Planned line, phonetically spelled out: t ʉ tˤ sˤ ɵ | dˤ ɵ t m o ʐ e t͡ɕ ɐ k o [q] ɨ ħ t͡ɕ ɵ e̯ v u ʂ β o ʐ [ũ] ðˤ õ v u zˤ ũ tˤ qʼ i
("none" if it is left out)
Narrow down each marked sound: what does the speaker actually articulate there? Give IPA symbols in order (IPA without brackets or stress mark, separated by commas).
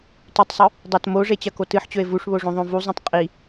t, õ